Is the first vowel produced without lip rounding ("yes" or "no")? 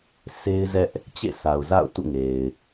yes